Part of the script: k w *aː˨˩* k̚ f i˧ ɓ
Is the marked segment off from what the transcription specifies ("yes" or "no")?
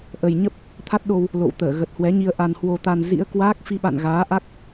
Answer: yes